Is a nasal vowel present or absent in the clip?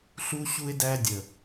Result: absent